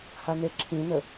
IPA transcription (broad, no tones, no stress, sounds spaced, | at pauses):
h a n e ǁʰ ĩ n ə